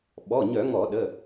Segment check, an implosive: present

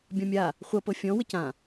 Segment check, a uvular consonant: present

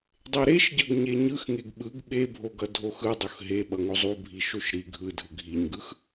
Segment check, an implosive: present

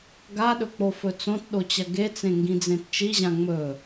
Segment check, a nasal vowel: present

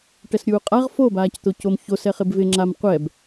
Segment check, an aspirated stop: absent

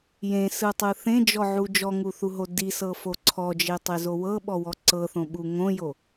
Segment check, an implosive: present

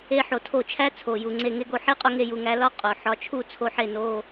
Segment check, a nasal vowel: absent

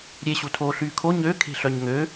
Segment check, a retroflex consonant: absent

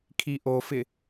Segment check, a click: absent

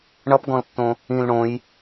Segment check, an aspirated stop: absent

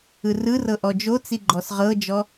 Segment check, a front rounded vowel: absent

